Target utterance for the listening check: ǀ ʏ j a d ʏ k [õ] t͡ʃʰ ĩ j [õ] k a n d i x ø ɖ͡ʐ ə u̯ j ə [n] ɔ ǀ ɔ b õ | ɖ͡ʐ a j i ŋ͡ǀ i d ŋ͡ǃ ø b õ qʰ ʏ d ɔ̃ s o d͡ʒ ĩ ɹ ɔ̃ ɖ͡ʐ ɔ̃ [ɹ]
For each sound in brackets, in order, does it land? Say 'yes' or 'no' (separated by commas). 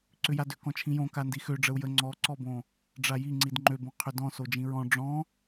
no, yes, no, no